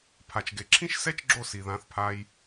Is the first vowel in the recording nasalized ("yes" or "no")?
no